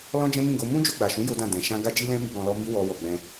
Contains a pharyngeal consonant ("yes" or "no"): no